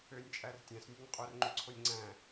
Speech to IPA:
ø nʲ t͡ʃʼ æ r tʲ æ̃ s nʲ ø ɲ qʼ o r ŋ͡ǃ y ǀʰ o nʲ ŋ͡ǀ æ̃

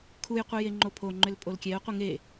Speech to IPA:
kʰ u j qʷ i j e ŋ͡ǃ o pʰ o ŋ͡ǃ ʏ l pʼ o l kʲ ɛ ʊ̯ qʷ i ŋ e

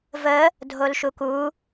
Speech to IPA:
v ə | dʱ o l ʃ u k u

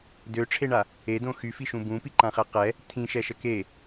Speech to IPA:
d ø ʈ͡ʂʰ e ɳ a | e d õ x y f i ʃ ũ b ũ p i ǃ ã χ ɛ q ɛ | tʰ ĩ ʃ ɛ ʃ ə k e

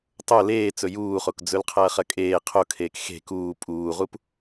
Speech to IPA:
tˤ o l eː t͡s ɵ j uː χ o k d͡z ɵ l qʰ ɐː χ ɐ kʼ eː qʰ o kʰ eː k x e̤ k uː pʼ uː ʁ u p

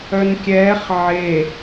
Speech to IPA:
œ n kʲ ɛː χ ʕ e

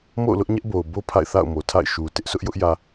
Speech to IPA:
m o̰˦˨ ʊ̯ l ʊ˦ ʔ ɲ ɛ˦ ʔ b o˨ ʊ̯ b o˦ pʰ a̰˦˨ ɪ̯ θ a̰˦˨ ʊ̯ m o˨ tʰ a̰˦˨ ɪ̯ ʃ u˨ t ɪ˦ ʔ sʰ ʊ˦ ʔ j ʊ˦ ʔ j ä˨

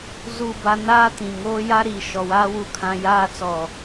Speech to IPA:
z u˦˨ b a˦ n aː˦ t ĩ˨ ŋ oː˦ j a˦ ɾ iː˨ ʃ ɔ˨ w aː˦ w u˦˨ kʰ ã˦ j aː˦ t͡s ɔ˦˨

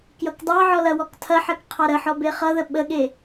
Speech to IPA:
k j ʌ k dˤ ɑ ʕ ɔ l ɐ w ɔ k tʰ ɐ ħ ɜ k qʰ ɑ ɾ ə ħ ɔ b e χ ʌ ð ə ɓ ə ɠ e

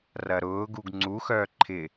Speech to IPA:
r ɐ ɾ ʊː ɡ u ɡ ŋ͡ǀ u x œː ǃʰ ɪ

